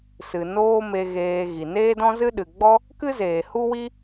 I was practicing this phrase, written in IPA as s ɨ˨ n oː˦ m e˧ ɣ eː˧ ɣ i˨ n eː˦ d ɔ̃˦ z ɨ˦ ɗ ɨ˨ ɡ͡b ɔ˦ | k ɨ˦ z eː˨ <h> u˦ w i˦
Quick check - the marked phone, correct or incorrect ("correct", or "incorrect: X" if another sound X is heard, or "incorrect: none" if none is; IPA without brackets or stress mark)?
correct